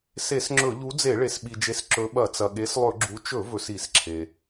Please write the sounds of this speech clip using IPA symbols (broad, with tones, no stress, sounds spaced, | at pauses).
s e˧˩˧ s ŋ͡ǁ ɵ˧˩˧ ʎ u˨˦ d͡z e˧˩˧ ɭ e˩ s ɓ i˩ d͡ʒ e˨˦ s ǁ ɵ˨˦ ɓ ɐ˧˩˧ t͡s ɐ˩ ɠ e˨˦ s lˠ ɵ˧˩˧ ɡ͡ǁ u˨˦ t͡ʃ ɵ˧˩˧ v ɵ˨˦ s i˧˩˧ s ǁʰ e˩